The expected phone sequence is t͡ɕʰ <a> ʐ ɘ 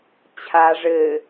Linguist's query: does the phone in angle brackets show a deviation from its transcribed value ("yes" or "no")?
no